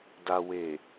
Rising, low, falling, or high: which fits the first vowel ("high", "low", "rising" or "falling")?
low